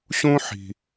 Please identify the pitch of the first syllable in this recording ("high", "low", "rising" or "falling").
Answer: high